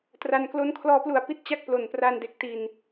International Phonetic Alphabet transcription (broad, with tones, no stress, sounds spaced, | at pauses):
t r a˧ n k l o˥˩ n kʰ l ɔː˧ p l u˨˩ a̯ p i˦˥ t̚ t͡ɕ a˥˩ k̚ p l o˨˩ n p r a˧ n d e˨˩ k̚ t i˨˩ n